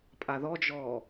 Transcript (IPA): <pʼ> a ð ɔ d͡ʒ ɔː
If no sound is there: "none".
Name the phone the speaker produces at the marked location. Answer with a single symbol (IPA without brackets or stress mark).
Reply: pʼ